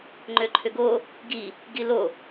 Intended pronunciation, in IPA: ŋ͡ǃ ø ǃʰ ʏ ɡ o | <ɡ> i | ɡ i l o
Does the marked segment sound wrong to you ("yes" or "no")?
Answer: no